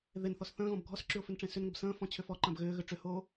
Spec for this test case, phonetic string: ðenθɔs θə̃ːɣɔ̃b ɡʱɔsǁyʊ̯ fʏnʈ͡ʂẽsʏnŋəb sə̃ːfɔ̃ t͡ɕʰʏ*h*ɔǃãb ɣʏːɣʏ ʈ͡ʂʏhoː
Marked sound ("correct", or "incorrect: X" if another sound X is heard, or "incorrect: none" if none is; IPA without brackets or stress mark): incorrect: f